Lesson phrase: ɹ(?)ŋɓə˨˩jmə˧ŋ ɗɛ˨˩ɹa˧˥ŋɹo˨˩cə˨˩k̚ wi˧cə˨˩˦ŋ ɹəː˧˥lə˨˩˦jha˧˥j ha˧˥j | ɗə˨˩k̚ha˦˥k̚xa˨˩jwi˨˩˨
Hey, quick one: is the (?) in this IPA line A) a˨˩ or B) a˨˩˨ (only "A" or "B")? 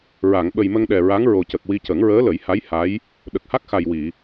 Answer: B